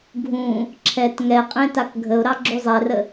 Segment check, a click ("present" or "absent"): present